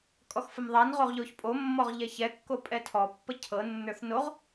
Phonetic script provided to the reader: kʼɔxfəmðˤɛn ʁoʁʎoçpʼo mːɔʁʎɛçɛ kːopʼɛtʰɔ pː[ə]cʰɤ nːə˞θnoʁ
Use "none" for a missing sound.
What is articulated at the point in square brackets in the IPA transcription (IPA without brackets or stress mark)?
ə